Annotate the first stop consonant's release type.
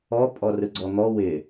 ejective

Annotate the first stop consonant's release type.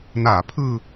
aspirated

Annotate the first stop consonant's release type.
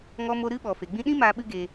implosive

